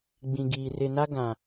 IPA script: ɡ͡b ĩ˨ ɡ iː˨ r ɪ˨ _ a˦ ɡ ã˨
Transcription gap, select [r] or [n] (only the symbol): n